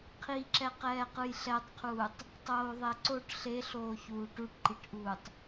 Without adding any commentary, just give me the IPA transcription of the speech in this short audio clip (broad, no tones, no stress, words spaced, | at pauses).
qʰiǁɛqɛːqɯj ɬɛtˤqʰuːtˤ | tˤoːðˤeǀoʈ ɬeɬoːçuː ʈuʈǃiʈʔuːtˤ